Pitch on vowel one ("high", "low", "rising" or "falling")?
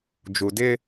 low